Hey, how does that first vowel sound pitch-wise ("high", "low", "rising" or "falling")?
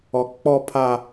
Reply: low